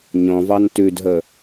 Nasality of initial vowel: nasal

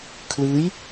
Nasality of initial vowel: oral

